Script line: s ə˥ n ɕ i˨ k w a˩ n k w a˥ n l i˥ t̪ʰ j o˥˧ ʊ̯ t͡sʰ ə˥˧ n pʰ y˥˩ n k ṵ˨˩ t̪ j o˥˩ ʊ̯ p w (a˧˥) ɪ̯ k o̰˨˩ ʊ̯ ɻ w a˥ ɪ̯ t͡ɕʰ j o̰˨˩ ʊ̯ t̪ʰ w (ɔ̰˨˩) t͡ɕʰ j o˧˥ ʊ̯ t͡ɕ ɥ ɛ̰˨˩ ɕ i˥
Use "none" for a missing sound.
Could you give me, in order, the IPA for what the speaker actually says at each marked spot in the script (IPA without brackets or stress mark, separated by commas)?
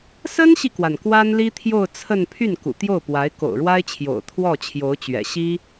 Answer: a˧˥, ɔ˥˩